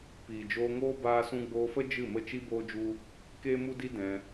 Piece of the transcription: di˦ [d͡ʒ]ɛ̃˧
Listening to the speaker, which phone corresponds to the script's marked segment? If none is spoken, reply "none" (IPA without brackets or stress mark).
d